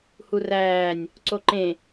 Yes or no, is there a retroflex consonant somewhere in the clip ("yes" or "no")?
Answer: no